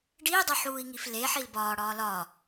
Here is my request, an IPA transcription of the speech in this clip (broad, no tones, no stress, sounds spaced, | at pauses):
ɖ iː dˤ o ħ uː i̯ ŋ i f l e ħ i l b ɒː ɽ ɒː l ɒ